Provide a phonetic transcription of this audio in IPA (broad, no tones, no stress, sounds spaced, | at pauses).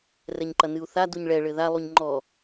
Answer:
r ɛ ɲ ǃ ɐ n ɨ u̯ θ a d u ɲ ɭ ɛ ɭ ɘ ð a lˠ u ɲ ŋ͡ǃ ɔ